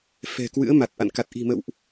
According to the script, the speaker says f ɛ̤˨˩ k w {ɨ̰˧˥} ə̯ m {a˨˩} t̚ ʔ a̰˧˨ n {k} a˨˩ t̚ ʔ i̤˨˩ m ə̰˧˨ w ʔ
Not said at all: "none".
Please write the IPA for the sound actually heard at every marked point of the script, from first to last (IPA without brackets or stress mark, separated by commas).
ɨ̰˧˥, a˨˩, k